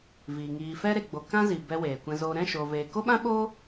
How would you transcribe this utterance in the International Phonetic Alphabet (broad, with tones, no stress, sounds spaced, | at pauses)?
v iː˨ ŋ iː˨ f ɛ˦ ɾ e˧ ɡ͡b o˧ k ã˦ z i˨ b ɛ˧ w eː˨ kʷ ɛ̃˧ z oː˧ ɾ ɛ̃˦˨ ʃ oː˨ v eː˨ k o˦ ɓ ã˦ ɓ oː˦